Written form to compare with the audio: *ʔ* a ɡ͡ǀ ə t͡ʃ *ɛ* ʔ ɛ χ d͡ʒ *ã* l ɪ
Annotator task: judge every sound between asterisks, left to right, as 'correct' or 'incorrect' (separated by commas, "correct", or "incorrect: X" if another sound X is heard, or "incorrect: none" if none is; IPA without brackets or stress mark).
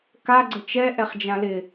incorrect: k, correct, correct